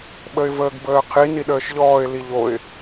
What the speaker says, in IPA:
ɓəɪ̯vəːɡbəːqʰi niɗəːʃʎɔːɪ̯ liʎoɪ̯

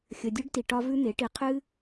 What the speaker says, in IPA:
xʲə˧dʲʉ˦ɖ ti˧ʈɒ˦vʉ˦ n̪e˨˦ʈi˧qʰɨ˦

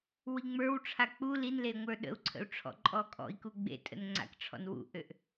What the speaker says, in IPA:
wiŋ͡mə˞wʈ͡ʂʰa k͡pu linle ŋʷə˞ɗə̰u̯ǀʰə̰u̯ ʈ͡ʂʰɔ̰ǃʼɔkʼɔ̰i̯ku ɡ͡bḛ tʼə̰nŋ͡ǀa̰kʈ͡ʂʰɔ̰n wṵʔøʔ

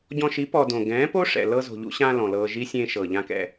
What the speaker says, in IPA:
ɟɔ̃˧ʃi˨˦ pɔ˧dõ˨ ɡɛ̃ː˨˦po˦ ʂɛ̰˨ lɤ˧ zo̤˨ʎṵ˧ɕãː˧ lɔ̃˨lɤː˧ʒi˦ sʲẽː˧ʃɤ˨ʎã˧kɛ̰˧

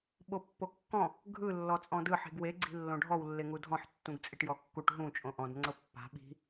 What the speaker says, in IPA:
ɓopːokːɔ̃ | ɡʱɯ lːɔt͡sʼɔ̃dɯ ħi̤ɡwe ɡ͡ǀi̤lːõɖʱɔw lːeŋudʱɔ̃ħ tːũɡt͡sʼiʈjɔkːuʈ ɦũ t͡ʃʼõʔɔ̃d ŋ͡ǀɤpːa̤ ɓi̤

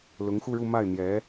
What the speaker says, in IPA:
lʊ˧˥ŋxu˥˧ɻu˥˧ ma˥˩ɪ̯n̪jɛ˧˥

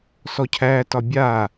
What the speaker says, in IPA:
sɔcʰætɒ bʲa

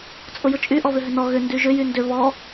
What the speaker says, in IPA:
t͡sʼʊjʊt͡ʃʼy ʔɔβʏɦʏnɔ ɣʏ ndyʒʏ jyndʏ βɔ

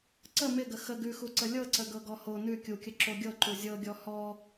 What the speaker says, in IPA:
ǀə mɪɡə xə ɡʉxuǀə lʲɤǀə ɡɤɡɔho nʉ kʲukʲə ǁoɡʲɤ ǃuzʲɤɡʲɔ hɔ

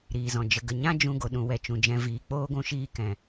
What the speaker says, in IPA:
ɾiː˨zɔ̃˨ d͡ʒə˨ɡə˨ɲã˦ d͡ʒũ˧ɡo˨ɗũ˨ wɛ˧t͡ʃũ˨d͡ʒɛ̃˧ viː˨k͡poː˦ɡʷũ˧ ʃiː˦kɛ̃˨

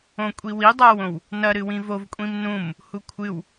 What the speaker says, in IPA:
õkʷʼiwi dˤawõw | nɐ ɾɨwĩvov kʷʼĩmnũm | hukʷʰɨw

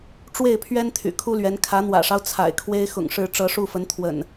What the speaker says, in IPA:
ʈ͡ʂwe˥˨ɪ̯pʰɥɛ˦n t̪ʰy̰˨˩kʰu˦lɥɛ˨˦n kʰä˨˦n̪wä̰˨˩ʂɑ˦ʊ̯ t͡sʰa̰˨˩ɪ̯kʰwe˦ɪ̯ xʊ̰˨˩ŋʂɻ̩˨˦ ʈ͡ʂɤ˨˦ʂu˥˨fə˨˦n t̪ʰwə̰˨˩n

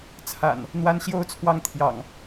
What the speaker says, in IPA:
t͡sʰa̰˨˩n | n̪wa˦nɕjo˦ʊ̯t͡sʰwɑ˦ŋ t̪ʰjɑ̰˨˩ŋ

